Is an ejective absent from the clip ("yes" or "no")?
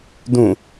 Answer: yes